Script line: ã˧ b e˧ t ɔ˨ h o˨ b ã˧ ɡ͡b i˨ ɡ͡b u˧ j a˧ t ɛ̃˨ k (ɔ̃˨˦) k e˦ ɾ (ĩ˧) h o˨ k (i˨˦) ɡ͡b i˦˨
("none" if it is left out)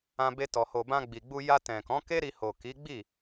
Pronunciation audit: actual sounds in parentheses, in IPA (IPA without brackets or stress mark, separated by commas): ɔ̃˨˦, i˧, i˨˦